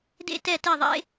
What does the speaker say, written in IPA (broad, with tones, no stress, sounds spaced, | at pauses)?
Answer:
d ḛ˥˨ t ɛ˥˨ t e˥˨ ðˤ ḛ˦˥